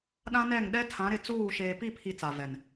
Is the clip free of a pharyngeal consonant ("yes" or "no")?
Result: yes